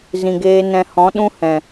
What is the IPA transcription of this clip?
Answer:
z ĩ˨ ɡ eː˧ n ɛ̃˧ h ɔ̃˨˦ ɗ ũ˦ h ɛ̃˨

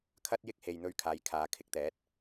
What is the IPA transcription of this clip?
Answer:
kʰ ɐ˥ t̚ j ɪ˥ k̚ h e˨ j n̪ ɵ˧ ɥ kʰ aː˨˧ j kʰ aː˨˧ kʰ ɪ˨˥ k̚ t̪ ɛː˨˥ t̚

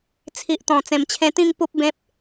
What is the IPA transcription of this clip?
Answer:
t͡sʰ i˨ ʔ t̪ ɔ̃˨˩ t͡s ẽ˨˩ m t͡ɕʰ ẽ˧ t̪ ĩ˥˧ ŋ p u˦ p̚ b ẽ˦ p̚

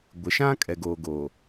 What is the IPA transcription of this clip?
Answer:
ɡʷ ɪ˨ ʃ ã˦ kʼ ɛ˨ ɡ oː˨ ɡ oː˨

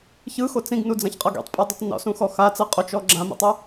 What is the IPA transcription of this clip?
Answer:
ç ɯ x o t͡s ĩ ɡ n u d͡z ã ç qʼ ɤ ɡ ḭ tˤ pʼ ɤ dˤ e tˤ n ɔ̰ s ũ x ɔ x a t͡s ɤ qʼ o t͡ʃ ɔ ɡ͡ǁ ã m ḭ tˤ ɤ

